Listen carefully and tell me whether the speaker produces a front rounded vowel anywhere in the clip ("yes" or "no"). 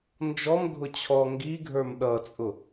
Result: no